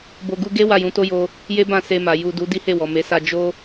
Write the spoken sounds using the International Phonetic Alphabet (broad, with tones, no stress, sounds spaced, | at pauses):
b o˧ ɡ u˦ ɡ e˦ w a˦˨ j ũ˨˦ t o˦ j o˧ | j e˦ b ã˦˨ s e˧ m a˨ j u˨ d u˨˦ d i˦ h e˦˨ w ɔ˨ m e˨˦ s a˧ d͡ʒ o˦